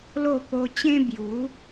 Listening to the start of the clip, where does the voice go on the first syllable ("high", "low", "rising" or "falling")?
falling